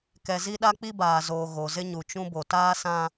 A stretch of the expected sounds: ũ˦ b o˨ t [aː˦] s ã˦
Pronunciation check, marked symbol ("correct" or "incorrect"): correct